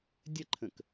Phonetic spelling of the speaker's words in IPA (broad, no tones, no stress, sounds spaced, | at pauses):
dʲ ə ǃʰ ə̃ k